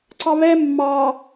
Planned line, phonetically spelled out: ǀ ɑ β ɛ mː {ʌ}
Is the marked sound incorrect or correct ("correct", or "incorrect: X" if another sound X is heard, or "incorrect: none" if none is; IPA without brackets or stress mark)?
incorrect: ɑ